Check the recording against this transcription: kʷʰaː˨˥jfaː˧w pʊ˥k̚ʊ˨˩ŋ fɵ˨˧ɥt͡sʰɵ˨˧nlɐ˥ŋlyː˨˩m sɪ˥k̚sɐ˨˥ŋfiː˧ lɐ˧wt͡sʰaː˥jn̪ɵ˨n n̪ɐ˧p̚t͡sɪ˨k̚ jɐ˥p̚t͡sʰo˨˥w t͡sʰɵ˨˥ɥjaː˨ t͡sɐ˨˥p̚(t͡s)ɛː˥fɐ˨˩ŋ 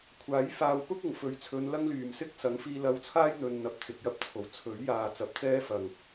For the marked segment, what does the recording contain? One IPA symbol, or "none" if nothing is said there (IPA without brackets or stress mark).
t͡s